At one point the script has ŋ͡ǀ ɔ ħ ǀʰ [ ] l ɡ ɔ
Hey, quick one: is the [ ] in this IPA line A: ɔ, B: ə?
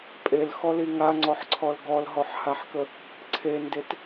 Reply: A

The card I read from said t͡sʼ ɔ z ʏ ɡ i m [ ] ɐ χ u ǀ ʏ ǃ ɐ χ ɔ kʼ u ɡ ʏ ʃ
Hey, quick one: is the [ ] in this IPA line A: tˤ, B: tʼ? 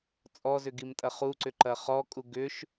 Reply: B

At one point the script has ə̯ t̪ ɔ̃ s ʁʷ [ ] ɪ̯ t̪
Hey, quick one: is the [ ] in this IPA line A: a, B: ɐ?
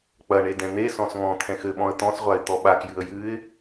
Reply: A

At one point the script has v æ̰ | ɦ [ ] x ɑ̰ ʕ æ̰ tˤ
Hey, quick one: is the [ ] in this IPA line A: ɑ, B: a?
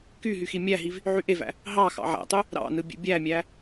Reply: A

